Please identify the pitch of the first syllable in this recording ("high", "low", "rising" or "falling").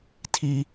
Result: high